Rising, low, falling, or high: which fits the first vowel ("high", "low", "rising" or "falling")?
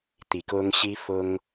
low